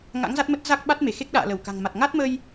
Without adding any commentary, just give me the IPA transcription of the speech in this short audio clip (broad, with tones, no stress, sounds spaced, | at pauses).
ŋ a̰˧˥ ŋ z a˦˥ t̚ m ə˦˥ t̚ z a˦˥ k̚ ɓ a˦˥ t̚ m e˧˩ x e˦˥ k̚ ɗ a̰ː˧˨ l ə˧˩ w k a̤˨˩ ŋ m a˨˩ t̚ ŋ a˦˥ t̚ m ə˧ j